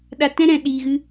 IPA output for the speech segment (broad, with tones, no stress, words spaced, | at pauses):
ɗa˧tɛ̃˦ ɾɛ̃˧ɗiː˧ɣɨ˦